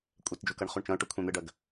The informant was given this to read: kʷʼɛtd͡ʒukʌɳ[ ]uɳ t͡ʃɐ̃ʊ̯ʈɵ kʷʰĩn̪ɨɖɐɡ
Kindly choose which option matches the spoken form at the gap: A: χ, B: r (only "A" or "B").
A